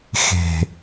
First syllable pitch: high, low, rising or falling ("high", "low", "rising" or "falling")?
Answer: low